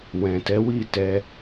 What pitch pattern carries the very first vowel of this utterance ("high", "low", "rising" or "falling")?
low